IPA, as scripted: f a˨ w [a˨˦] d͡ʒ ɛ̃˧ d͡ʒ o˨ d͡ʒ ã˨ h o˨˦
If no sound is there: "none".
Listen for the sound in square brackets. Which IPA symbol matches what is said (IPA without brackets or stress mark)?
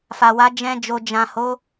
a˨˦